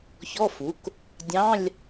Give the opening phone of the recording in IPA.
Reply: ç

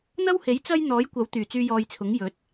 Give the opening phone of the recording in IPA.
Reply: n̪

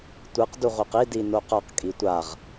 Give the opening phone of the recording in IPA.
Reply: tʷ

